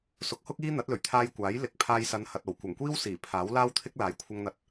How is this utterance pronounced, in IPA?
sʊ˨˥k̚hʊ˥k̚ iː˥ n̪ɐ˨˥t̚lɵ˨˩ɥt̪ʰaː˧jkʷaː˨˥j lɪ˨˥k̚ pʰaː˧jsɐ˨˧nhɐ˨t̚ o˨˩wkʷɐ˨˩ŋkʷiː˥w siː˨˩ pʰaː˨˥wlaː˥wt̪ʰɪ˥k̚ laː˨˥jkʷʰɐ˧ŋn̪ɐ˨˥t̚

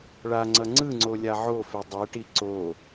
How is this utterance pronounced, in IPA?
ɭaŋ͡ǀʌ ŋ͡ǀɯŋ͡ǀo lʲaʕofe dˤeʈi ǀo

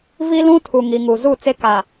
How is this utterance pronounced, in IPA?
vi˦lũ˦ tʰu˨ŋi˨ŋu˨ zu˦˨t͡se˦ ka˨

